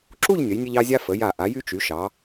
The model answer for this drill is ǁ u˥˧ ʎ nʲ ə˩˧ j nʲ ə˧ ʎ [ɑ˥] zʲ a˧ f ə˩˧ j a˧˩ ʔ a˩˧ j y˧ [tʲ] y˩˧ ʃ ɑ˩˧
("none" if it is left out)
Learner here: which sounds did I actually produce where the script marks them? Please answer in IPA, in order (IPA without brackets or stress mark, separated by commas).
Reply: ɑ˧, t͡ʃ